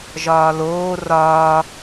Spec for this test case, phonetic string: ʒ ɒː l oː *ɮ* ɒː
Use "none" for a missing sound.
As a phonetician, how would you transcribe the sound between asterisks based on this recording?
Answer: r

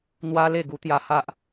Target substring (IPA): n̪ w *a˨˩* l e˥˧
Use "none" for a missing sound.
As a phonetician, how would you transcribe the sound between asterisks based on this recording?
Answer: a˦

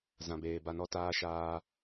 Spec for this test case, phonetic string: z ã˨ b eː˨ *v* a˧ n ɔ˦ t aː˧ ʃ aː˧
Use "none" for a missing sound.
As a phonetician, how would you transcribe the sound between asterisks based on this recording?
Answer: b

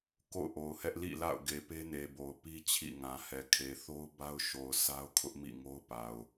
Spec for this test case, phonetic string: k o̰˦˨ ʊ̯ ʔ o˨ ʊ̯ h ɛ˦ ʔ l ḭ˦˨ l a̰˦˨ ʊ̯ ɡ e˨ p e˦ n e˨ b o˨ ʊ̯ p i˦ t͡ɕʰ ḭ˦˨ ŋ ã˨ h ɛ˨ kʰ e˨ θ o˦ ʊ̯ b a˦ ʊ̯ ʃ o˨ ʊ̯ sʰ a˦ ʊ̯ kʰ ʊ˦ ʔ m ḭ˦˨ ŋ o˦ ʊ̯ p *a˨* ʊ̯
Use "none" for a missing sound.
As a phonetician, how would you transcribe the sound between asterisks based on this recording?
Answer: a˨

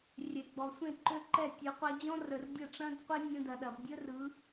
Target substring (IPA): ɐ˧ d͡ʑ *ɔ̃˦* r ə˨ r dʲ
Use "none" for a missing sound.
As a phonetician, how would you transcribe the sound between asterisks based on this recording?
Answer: ɔ̃˦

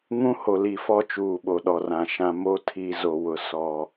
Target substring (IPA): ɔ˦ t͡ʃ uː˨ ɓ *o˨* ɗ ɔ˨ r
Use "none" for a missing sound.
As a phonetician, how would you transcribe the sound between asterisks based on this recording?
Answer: o˨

